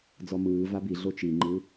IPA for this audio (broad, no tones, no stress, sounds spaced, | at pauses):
d͡z ɔ m ɯː v a b i ɮ o t͡ʃ i ŋ͡ǃ ɯ